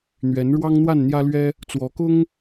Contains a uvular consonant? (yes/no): no